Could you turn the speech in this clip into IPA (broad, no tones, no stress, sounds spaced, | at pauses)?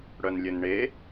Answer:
ɽ œ n lʲ ɘ n ɳ e